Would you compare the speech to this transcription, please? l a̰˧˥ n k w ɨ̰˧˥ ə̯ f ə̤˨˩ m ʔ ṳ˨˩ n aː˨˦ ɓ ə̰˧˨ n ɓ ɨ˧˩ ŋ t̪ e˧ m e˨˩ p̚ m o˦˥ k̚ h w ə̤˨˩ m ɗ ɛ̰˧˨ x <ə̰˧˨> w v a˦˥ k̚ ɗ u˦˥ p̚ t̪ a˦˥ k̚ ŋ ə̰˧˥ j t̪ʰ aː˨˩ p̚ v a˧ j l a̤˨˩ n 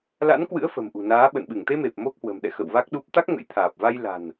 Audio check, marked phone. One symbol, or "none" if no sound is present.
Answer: ə̰˧˨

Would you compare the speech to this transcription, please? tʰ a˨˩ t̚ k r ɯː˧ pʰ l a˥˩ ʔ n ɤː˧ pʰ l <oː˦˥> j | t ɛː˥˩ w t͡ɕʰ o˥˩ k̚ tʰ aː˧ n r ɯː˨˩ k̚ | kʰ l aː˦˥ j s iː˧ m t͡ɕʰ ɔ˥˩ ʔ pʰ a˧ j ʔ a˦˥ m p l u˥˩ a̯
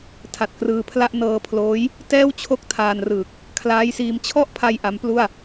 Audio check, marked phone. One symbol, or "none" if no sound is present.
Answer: oː˦˥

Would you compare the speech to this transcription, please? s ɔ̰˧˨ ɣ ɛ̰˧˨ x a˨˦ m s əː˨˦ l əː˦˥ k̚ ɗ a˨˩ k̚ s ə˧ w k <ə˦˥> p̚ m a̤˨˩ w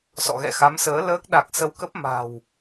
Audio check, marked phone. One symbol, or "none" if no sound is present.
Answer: ə˦˥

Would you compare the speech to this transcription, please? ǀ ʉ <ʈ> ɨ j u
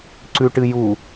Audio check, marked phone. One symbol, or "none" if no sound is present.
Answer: ʈ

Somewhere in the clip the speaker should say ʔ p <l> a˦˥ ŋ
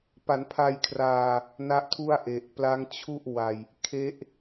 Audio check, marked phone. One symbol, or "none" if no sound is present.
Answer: l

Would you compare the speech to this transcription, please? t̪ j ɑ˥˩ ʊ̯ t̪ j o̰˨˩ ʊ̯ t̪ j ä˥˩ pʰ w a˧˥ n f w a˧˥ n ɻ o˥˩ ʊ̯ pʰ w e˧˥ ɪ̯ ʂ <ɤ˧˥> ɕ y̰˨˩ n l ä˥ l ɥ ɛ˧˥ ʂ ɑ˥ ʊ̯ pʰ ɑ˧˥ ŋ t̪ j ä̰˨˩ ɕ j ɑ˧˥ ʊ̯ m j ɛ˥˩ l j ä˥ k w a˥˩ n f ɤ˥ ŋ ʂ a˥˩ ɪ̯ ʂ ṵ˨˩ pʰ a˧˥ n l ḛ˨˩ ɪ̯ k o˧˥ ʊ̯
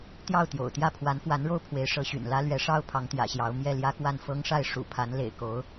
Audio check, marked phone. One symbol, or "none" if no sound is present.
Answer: ɤ˧˥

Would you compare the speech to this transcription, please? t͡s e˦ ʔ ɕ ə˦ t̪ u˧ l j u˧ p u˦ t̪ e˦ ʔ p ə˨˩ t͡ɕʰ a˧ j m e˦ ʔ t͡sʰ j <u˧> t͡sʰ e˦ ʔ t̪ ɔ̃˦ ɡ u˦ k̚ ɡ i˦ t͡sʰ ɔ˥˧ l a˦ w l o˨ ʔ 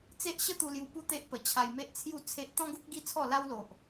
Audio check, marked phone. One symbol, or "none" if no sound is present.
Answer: u˥˧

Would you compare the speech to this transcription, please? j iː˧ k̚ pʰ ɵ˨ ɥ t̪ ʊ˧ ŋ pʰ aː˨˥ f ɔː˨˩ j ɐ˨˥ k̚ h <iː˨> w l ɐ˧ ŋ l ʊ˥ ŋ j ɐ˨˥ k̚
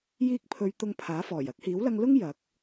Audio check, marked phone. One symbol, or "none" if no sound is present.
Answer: iː˨˥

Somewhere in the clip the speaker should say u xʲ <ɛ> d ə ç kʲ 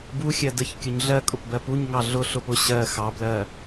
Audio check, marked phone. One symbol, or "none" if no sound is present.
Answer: ɜ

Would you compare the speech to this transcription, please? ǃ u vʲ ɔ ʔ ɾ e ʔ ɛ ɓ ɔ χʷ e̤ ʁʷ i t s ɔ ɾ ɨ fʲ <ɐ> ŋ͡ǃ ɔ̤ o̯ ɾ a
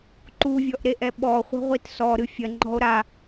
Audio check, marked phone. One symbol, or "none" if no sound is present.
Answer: ɐ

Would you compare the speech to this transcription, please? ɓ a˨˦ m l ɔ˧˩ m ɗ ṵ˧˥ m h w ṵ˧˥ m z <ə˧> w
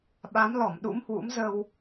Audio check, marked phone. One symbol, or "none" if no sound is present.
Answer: ə˧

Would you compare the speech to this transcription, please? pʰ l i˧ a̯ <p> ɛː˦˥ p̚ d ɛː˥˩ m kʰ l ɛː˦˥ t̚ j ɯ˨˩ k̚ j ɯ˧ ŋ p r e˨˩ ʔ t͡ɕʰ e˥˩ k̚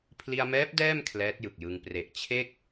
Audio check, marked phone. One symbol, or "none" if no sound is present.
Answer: m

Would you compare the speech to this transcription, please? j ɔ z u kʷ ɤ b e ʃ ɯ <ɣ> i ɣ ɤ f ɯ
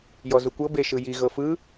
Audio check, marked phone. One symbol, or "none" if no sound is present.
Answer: j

